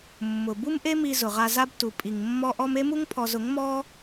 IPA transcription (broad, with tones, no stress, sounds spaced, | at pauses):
mː ʊ˨ b u˦ m ʔ e˦ m i˧ z ʊ˨ ʁ a˧ z a˦ b t u˨ pʼ i˨ ŋ mː ɔ˦ ʔ ɔ˦ m e˦ m u˦ ŋ pʰ ɔ˧ z ʊ˨˦ ŋ m ɔ˦